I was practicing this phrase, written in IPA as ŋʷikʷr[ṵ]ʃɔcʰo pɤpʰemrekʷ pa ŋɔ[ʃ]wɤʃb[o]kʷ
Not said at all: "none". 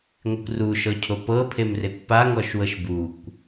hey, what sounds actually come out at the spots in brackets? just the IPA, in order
u, ʃ, u

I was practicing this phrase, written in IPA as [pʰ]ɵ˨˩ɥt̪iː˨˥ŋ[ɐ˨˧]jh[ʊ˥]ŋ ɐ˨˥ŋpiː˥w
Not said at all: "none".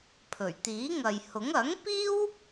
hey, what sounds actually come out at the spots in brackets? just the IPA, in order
pʰ, ɐ˨, ʊ˨˥

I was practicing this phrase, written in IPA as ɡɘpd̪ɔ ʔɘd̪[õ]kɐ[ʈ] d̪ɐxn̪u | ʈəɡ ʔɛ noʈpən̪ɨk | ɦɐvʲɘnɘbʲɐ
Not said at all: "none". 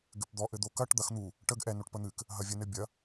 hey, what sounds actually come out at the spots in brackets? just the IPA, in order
o, ʈ

